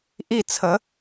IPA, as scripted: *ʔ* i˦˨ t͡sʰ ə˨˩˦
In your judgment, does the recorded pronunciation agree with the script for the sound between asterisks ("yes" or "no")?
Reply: yes